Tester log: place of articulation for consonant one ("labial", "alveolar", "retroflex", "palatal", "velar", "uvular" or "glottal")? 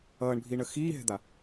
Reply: retroflex